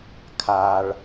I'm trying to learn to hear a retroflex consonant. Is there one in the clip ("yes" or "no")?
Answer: yes